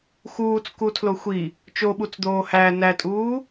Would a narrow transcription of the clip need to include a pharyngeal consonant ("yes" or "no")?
no